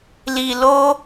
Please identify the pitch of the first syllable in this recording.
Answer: low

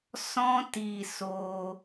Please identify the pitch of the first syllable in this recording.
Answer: high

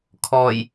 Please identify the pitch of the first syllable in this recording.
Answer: low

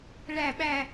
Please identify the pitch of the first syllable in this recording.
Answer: falling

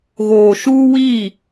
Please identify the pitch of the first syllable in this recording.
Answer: low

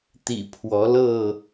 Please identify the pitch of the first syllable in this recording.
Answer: low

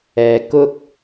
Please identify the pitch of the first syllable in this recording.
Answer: low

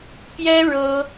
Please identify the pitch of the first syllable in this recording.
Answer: high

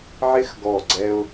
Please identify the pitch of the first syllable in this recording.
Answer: high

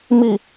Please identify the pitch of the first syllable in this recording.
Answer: low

